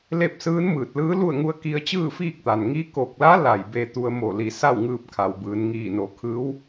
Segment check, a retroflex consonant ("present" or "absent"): absent